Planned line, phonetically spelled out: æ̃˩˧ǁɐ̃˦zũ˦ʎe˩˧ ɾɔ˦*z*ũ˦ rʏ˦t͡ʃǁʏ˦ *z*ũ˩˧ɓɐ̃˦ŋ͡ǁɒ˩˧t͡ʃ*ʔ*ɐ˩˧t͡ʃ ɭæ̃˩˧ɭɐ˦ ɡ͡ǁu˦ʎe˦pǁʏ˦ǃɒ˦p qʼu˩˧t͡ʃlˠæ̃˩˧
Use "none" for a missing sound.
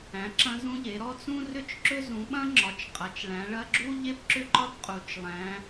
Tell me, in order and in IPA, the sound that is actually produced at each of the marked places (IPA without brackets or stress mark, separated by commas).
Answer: t͡s, z, qʼ